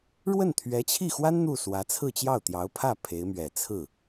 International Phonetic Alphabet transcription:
ɻ w ə˥˩ n t̪ʰ ɥ ɛ˧˥ t͡ɕʰ i˥˩ x w a˥ n n̪ u˥˩ s w ä˧˥ t͡sʰ ɹ̩˥˧ t͡ɕ j ɑ˥˩ ʊ̯ t̪ j ɑ˧˥ ʊ̯ pʰ ä˥˩ pʰ e˧˥ ɪ̯ m ɥ ɛ˨˩ t͡sʰ ɹ̩˥˩

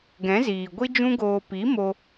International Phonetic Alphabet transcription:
ɡ ɛ̃˨˦ z iː˨ ɡʷ i˦ d͡ʒ ũ˦ ɡ oː˧ p i˨˦ m o˧

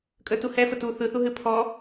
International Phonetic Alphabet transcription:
kʼ ə t u h ɛ f ə t u θ ɯ θ u ɦ ɨ pʰ ɔ

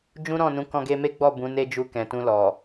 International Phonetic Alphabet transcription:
d͡ʒ ũ˦ ɾ ɔ̃˦˨ n ũ˨˦ k ɔ̃˧ ɡ e˧ m e˦ ɡ͡b ɔ˦˨ b ũ˨˦ n e˦ d͡ʒ u˧ k ɛ̃˨ t ũ˧ l ɔ˨

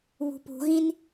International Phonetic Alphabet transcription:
β ṳ p ṳ ɣ ĩ n

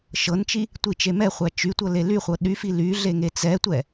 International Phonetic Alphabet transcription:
ʃ ɤ n t͡ʃ i | tʷ i t͡ʃ e m ɛ χʷ æ t͡ʃ y tʷ ɤ l e l y χʷ ɤ ɗ y f i l y ɮ e ŋ e t͡s ɛ tʷ ɛ

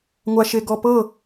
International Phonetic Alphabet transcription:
ŋʷ a ʃ e ɡ ɔ p ɤ

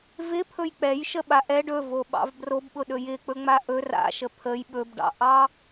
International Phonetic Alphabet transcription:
v ɪ pʰ ɵ j k͡p ɛ j ʃ ə ɓ a ʔ ɛ ɖ ɵ v o ɓ ɑ̰ v b r o b ɓ ʊ ɗ ɵ j ɪ k͡p ɵ ŋ͡m a ʔ ɵ r a̰ ʃ ə pʰ ə j ɓ ɵ b ɖ ɑ̰ ʔ ɑ

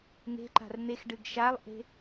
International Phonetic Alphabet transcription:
ŋ e̤ ǃ a̤ r n̪ e x ɖ ɨ ɡ ʃ a lˠ ʔ e̤

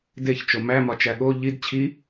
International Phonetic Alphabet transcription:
d e ç t͡ʃ o m æ m ɒ t͡ʃ æ ɠ o ʎ i d t͡ɕʰ i

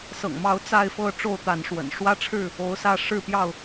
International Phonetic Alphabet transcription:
s ɤ̰˨˩ ŋ m ɑ˨˦ ʊ̯ t͡s a˥˨ ɪ̯ f ɤ˥˨ ʈ͡ʂ o˥˨ ʊ̯ t̪ a˨˦ n ʂ w ə̰˨˩ n ʂ w ä˦ ʈ͡ʂʰ ɻ̩˥˨ | o˨˦ ʊ̯ s ä˥˨ ʂ ɻ̩˥˨ p j ɑ˥˨ ʊ̯

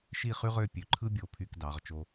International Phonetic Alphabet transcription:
ʃ i˦˨ χ y˦ ʁ ø˦˨ pʲ ø˨ ǃʰ ɯ˦ bʲ o˨ pʰ y˨ k d ɑ˨˦ ʁ t͡ʃ o˦

